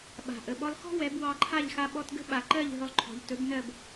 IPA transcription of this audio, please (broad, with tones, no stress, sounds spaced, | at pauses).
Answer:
ɓ a̤˩ ʔ ə˩ ɓ ɔ˧ lˠ x ɔ̤˥ w ɛ˩˥ b w ɑ˧ ǃʰ a˥˩ ʎ x a˧ ɓ ɔ˧ t ɡ ə̤˥ ɓ a˩ ǃ ɜ˥˩ ʎ ɦ ɵ˧ lˠ ǃʰ ɔ̤˩ ʎ t ɵ˩˥ b n ɜ˥˩ b